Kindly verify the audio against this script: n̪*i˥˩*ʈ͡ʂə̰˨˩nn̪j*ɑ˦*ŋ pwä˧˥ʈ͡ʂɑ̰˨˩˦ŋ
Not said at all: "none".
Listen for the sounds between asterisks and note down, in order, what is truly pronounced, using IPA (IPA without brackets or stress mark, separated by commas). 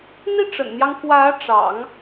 i˥, ɑ˦